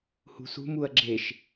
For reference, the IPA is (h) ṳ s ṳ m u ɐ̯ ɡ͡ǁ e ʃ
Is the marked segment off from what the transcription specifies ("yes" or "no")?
no